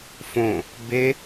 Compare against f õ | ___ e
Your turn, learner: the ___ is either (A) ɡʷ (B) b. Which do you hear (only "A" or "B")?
B